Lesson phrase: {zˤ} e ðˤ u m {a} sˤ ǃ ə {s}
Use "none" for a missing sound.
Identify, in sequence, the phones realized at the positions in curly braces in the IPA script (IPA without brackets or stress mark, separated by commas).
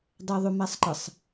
dˤ, a, sˤ